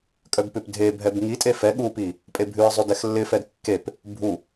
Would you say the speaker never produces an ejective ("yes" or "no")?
no